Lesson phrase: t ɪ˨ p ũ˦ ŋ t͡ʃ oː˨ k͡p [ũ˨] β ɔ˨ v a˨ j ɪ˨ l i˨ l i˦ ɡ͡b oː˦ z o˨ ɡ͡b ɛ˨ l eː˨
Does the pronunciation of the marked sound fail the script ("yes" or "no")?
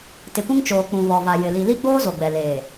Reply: no